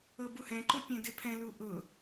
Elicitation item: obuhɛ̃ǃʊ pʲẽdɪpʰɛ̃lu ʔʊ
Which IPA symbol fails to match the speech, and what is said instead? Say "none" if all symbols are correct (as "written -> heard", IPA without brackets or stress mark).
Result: o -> ɤ